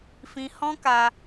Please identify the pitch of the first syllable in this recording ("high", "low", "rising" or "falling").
high